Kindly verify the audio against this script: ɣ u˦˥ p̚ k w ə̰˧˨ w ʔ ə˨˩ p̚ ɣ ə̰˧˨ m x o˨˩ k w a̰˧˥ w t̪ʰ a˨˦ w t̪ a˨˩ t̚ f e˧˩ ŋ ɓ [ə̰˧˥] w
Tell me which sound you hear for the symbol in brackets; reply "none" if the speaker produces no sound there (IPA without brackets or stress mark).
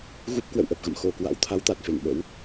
ə̰˧˥